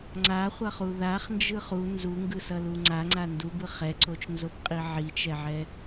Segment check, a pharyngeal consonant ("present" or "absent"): present